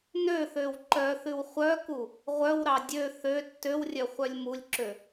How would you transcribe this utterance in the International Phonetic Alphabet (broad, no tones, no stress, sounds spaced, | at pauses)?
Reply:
n ø θ ø w ǃ œ θ ʉ w χʷ œ k u | ʁʷ œ w ɾ ɑ dʲ ø θ ø tː ø w rʲ œ χʷ œ lʲ m u lʲ ǁ ø